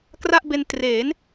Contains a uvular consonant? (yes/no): no